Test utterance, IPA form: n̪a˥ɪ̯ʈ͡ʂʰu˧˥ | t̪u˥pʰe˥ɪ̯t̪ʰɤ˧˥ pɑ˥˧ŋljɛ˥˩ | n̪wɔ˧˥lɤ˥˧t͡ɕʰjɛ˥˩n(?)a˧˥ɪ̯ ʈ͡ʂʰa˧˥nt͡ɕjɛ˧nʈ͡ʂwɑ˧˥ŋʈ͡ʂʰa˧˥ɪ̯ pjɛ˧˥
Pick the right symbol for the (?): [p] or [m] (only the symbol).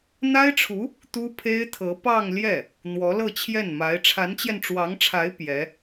m